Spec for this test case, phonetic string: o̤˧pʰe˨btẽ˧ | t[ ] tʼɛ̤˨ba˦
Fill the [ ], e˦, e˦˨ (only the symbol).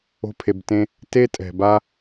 e˦